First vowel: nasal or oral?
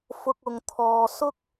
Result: oral